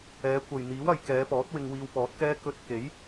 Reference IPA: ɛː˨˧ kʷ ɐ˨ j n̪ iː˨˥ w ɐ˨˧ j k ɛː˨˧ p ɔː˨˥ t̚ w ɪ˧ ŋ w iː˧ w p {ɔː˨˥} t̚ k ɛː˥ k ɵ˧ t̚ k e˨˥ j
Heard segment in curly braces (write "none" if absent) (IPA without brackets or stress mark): ɔː˨˥